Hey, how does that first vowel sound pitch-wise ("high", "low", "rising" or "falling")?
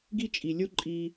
high